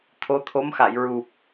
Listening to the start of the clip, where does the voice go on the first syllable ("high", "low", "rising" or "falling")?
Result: rising